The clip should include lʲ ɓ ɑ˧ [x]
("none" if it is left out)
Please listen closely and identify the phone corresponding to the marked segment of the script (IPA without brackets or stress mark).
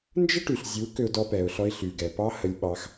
x